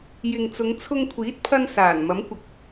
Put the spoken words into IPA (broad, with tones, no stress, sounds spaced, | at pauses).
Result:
j ɪ˨ ŋ t͡s ʊ˨˧ ŋ t͡sʰ ʊ˧ ŋ kʷʰ iː˨˥ t̚ pʰ ɐ˧ n s aː˨˩ n m ɐ˨˥ m kʷ ɐ˨ k̚